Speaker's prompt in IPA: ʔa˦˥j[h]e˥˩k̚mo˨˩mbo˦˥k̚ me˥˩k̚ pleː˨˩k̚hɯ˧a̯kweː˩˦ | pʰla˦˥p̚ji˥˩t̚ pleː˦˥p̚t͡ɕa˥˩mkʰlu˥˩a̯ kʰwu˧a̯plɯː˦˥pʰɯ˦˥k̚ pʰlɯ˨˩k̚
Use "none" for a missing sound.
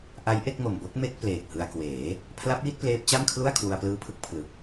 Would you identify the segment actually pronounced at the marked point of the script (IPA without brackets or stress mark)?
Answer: ʔ